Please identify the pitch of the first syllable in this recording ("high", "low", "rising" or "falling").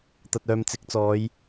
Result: low